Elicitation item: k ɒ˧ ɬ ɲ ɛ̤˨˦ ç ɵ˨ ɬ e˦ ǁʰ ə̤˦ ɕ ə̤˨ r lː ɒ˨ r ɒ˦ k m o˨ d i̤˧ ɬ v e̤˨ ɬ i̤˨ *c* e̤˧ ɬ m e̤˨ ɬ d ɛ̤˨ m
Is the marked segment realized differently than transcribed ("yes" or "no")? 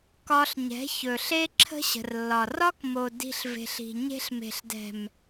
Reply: yes